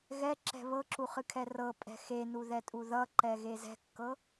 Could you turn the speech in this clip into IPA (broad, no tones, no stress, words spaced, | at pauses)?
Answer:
ɣɛǁɛ̤ βɤǁuχɨkʰɛ rɤpʼɛ̤ xenuðɛtʼu ðʌǃɛɣe zɛ̤kːɤ